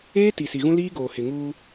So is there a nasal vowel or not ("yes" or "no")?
yes